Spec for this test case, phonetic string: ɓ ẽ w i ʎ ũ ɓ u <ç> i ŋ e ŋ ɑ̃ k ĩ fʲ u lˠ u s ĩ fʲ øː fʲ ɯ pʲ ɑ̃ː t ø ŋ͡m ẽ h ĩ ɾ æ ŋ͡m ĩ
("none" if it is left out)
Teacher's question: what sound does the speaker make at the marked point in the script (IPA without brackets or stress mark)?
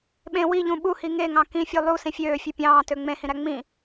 h